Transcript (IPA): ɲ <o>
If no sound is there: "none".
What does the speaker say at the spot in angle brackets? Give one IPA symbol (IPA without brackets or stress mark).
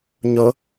o